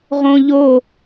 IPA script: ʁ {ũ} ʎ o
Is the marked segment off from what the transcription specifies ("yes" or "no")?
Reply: yes